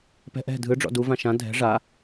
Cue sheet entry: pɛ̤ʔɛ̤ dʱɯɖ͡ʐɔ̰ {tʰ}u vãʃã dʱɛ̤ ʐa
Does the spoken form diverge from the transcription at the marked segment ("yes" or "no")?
yes